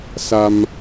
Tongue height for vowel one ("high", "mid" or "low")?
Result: low